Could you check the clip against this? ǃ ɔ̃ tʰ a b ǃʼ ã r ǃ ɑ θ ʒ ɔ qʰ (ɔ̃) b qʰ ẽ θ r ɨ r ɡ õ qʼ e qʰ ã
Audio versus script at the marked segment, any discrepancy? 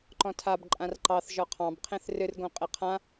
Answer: yes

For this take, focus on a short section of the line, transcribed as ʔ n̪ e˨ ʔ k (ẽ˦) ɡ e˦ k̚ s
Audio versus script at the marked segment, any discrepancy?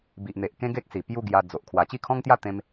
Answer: no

